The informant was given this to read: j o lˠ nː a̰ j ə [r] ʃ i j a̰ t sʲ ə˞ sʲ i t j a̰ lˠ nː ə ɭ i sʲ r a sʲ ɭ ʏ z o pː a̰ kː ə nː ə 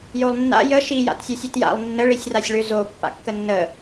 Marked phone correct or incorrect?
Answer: incorrect: none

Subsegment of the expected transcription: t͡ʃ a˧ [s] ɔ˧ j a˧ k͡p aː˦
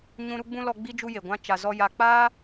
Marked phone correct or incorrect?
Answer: incorrect: z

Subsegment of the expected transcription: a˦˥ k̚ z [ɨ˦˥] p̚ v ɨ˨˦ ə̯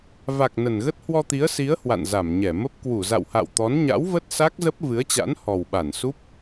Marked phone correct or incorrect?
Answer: incorrect: ə˦˥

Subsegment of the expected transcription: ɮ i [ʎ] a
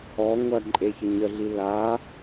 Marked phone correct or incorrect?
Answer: incorrect: l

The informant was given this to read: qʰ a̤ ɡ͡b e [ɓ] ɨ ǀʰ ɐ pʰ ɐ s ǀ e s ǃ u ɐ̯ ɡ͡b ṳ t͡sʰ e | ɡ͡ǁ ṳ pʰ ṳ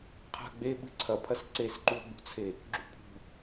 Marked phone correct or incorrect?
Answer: correct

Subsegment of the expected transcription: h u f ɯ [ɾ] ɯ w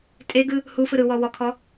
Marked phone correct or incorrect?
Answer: correct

